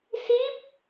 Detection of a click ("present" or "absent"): absent